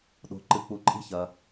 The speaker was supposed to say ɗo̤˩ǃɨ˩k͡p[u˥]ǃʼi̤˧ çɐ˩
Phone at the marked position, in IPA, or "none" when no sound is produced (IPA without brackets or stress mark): u˩